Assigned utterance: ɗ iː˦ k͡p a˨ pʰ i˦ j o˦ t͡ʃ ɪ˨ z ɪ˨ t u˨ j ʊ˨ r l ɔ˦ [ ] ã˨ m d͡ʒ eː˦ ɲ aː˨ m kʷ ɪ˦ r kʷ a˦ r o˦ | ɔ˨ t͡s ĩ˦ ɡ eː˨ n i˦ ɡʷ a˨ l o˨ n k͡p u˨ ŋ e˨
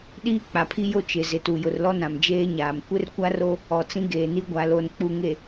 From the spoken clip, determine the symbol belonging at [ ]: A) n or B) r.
A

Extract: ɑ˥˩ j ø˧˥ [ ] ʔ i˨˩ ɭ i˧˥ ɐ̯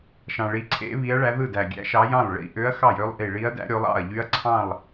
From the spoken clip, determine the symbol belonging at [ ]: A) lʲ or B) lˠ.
B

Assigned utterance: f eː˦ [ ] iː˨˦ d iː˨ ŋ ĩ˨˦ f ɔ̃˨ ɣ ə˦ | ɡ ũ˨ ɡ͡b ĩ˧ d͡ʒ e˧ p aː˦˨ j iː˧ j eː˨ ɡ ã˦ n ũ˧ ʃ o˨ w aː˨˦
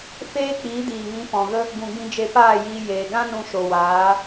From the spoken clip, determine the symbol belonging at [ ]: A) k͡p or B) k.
A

